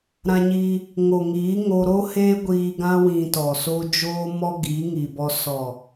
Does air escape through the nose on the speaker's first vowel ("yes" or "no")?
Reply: yes